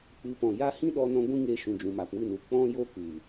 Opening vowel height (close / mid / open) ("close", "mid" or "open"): close